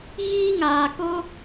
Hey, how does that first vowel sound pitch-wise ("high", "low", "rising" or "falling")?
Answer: high